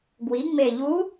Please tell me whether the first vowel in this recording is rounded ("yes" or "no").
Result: no